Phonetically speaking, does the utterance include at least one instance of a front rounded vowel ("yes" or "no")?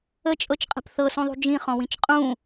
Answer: no